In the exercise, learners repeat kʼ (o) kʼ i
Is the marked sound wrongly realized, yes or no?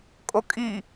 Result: no